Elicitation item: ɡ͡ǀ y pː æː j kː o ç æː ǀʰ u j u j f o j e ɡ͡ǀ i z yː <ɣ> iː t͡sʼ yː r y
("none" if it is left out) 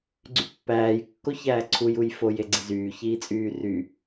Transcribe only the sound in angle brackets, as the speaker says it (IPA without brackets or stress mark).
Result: ç